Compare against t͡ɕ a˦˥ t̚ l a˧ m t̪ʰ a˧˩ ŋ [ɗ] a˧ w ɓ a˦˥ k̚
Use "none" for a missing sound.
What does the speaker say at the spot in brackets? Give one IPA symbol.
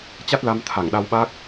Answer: ɗ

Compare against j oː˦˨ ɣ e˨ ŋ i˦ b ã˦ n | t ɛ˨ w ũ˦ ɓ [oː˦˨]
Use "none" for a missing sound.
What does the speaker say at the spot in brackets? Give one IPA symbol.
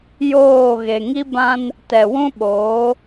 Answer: oː˨˦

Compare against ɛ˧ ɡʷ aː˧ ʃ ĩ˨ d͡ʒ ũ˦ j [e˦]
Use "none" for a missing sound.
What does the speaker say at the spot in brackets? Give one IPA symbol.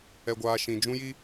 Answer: i˦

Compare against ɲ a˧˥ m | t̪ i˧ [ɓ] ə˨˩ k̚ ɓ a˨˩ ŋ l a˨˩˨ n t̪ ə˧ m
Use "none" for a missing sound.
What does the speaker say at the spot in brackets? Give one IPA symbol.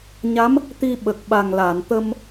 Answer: ɓ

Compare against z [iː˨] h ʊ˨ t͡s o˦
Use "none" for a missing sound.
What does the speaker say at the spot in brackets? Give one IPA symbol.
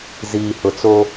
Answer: iː˨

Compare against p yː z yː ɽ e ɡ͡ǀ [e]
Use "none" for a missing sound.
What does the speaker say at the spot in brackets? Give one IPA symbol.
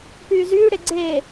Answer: eː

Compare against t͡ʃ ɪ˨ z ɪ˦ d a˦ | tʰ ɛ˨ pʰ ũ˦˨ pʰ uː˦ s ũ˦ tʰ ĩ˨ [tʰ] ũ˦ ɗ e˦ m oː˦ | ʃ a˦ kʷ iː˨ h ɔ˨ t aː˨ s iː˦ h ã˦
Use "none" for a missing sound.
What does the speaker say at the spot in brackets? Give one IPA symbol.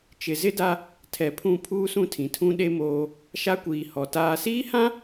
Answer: tʰ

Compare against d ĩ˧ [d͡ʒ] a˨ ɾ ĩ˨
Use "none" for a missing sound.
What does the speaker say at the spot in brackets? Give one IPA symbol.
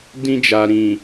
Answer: d͡ʒ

